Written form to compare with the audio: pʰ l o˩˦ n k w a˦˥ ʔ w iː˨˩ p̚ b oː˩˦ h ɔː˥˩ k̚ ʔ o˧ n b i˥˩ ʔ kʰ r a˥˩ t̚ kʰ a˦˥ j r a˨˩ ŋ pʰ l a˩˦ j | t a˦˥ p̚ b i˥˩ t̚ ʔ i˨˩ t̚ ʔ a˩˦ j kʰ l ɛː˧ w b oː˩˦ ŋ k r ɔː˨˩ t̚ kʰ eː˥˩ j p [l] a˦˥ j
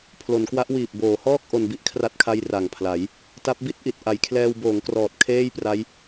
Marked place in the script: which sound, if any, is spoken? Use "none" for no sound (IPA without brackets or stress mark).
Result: r